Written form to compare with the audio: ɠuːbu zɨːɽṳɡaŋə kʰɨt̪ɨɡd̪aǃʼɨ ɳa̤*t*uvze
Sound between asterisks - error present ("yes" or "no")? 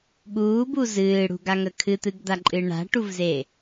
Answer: yes